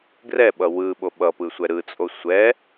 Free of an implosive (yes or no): no